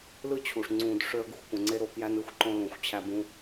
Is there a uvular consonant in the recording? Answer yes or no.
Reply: no